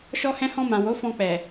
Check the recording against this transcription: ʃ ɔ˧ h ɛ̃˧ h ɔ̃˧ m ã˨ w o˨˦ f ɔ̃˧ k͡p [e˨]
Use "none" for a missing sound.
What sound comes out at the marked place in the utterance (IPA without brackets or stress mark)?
ɛ˨